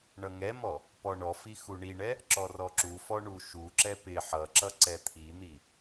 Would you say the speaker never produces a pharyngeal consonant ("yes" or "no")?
no